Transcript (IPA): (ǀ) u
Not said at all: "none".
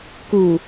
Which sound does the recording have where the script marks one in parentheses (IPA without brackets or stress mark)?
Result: k